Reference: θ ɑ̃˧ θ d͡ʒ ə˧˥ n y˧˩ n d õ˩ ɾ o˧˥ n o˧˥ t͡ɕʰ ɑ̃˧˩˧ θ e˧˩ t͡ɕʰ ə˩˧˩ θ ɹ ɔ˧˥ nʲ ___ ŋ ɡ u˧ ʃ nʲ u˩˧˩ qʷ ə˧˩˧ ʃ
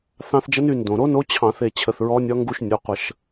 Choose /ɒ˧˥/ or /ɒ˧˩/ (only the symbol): ɒ˧˥